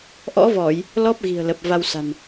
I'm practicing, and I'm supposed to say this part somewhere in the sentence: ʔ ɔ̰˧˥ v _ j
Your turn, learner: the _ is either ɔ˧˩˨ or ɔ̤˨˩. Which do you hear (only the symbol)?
ɔ˧˩˨